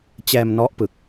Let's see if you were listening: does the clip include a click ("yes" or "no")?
no